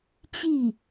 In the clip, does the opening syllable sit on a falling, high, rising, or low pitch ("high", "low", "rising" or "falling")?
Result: falling